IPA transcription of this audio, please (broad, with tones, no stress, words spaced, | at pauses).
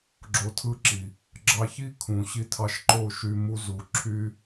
ɡ͡ǁo˧tʰɯ˦ǁi˨ | ɡ͡ǁɑ˧çi˦ kʰũ˨ɕi˧tʰɑ˧ʃǃo˦˨ ʃy˧mu˦zu˨ ǁʰy˦